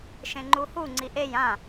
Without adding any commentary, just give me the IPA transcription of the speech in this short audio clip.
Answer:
ʃ ẽ ŋ͡ǃ u h u ŋ͡ǀ i ʔ e j ã

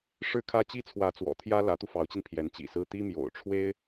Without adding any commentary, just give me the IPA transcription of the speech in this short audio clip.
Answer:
ʂ ɻ̩˥ kʰ ä˥ t͡ɕ i˥ t͡sʰ w ä˧˥ t͡s w ɔ̰˨˩ t̪ʰ j ä˥ l ä˧˥ t̪ u˧ f ɑ˧˥ ʊ̯ t͡ɕ i˧ n pʰ j ɛ˧˥ n t͡ɕ ḭ˨˩ s ɹ̩˥ t̪ i˥ m j o̰˨˩ ʊ̯ ʈ͡ʂʰ w e˥ ɪ̯

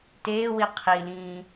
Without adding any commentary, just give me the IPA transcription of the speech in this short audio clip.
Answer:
t eː w i qʰ i l ĩː

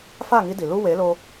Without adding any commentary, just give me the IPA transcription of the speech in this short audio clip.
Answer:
f a˥˩ ŋ i˧ d i˩ l u˧ w e˩˥ l o˧

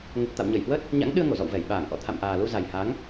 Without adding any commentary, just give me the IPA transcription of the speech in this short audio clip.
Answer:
ŋ ə˨˩ t̚ t̪ a̰˧˨ w ɲ ə˧˩ j h w ə˦˥ t̚ | ɲ a̰˧˥ ŋ ɗ ɨ˧ ə̯ ŋ o˧˩ z ɔ̰˧˨ w v ɛ˧˩ j ɓ aː˧˩ ŋ ʔ ɔ̰˧˨ t̪ʰ a̰˧˨ m ʔ aː˨˩ l u˧ z a˨˩ j h a˨˦ ŋ

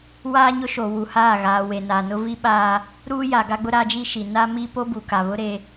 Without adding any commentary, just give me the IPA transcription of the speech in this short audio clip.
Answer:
w aː˦ ɲ ʊ˦ ʃ o˨ w u˨ h aː˦˨ ɣ aː˨ w e˨ n a˨ n ʊ˦ v i˦ ɓ aː˦ | ɾ uː˦ j a˨ ɡ a˦ ɡ͡b ʊ˦ ɾ a˦ d͡ʒ i˦ ʃ i˨ n a˦ m i˦ p o˦ b u˨ k a˨ β ʊ˦ ɾ e˦

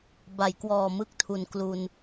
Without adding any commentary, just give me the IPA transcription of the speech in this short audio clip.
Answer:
b a˩˦ j k w ɔː˨˩ m ɯ˦˥ k̚ tʰ u˨˩ n k l u˧ n

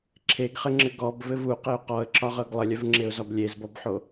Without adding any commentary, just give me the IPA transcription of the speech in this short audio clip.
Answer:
ǁʰ e ɡ χ ɘ ŋ͡ǁ ɘ ɡ ɔ b v ɘ v u q ɘ ʊ̯ q ɔ ə̯ ǁ ɒ ʁ ɤ ɡ lˠ ɘ lʲ œ v ŋ͡ǁ e ʊ̯ z ɒ b lʲ e z b ɔ b ħ o

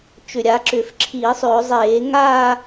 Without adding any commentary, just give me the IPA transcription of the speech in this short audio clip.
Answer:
t͡ʃ ʏ˨˩ ɾʲ a˩˧ ǁ ʏː˨˩ f ǁʰ iː˧˩˧ sˤ ʏː˧˩˧ zˤ eː˧˩˧ ŋ aː˥˧

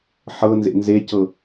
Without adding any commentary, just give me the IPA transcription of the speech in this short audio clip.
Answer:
ħ ɤ n z ḛ n z e c ɤ

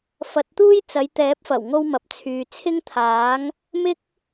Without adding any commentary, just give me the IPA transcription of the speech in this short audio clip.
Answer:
f ɐ˨˥ t̚ t̪ uː˥ j t͡s ɐ˨˧ j t̪ ɛː˨˥ p̚ f ɐ˨˩ w ŋ o˧ w m ɐ˨ p̚ t͡sʰ yː˨ t͡sʰ ɪ˥ ŋ t̪ʰ aː˨˥ ŋ | m ɪ˥ k̚

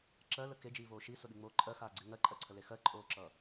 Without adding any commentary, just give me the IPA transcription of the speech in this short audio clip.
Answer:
ǁ ɜ l ə k e d͡ʒ iː v oː ʃ i s ʊ ɗ i ŋ͡m oː ǃʼ ɜ x aː ɡ͡ǀ e ŋ ɜ ǃʼ ɜ ǀʰ ə l e x ɜ ǃʼ oː ǁ ʌː

